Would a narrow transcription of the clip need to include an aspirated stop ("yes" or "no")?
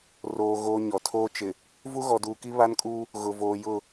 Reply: yes